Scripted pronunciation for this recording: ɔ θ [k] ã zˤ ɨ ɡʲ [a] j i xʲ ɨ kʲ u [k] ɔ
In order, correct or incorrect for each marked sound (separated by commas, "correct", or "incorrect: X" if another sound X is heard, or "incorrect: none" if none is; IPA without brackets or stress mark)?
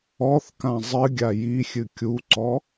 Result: correct, correct, incorrect: ǀ